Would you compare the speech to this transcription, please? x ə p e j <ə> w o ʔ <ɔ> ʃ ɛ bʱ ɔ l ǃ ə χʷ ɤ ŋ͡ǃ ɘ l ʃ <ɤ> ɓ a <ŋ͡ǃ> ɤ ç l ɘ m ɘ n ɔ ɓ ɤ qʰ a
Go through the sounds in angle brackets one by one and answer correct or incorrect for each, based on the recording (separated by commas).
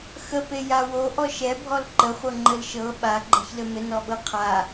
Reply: incorrect, correct, correct, incorrect